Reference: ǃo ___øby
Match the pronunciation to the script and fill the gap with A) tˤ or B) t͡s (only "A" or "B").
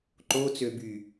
B